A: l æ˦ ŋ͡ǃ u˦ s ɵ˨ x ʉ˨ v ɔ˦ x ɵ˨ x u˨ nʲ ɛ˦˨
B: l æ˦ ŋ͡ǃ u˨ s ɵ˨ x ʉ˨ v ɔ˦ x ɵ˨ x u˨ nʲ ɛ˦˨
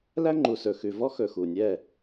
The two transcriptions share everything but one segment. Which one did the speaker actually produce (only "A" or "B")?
B